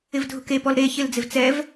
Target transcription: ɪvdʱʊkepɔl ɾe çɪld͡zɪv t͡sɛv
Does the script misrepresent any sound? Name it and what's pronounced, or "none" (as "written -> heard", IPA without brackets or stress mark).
none